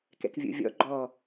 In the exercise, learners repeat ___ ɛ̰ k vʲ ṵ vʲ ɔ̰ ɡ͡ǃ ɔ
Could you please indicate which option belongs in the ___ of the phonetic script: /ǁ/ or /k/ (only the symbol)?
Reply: k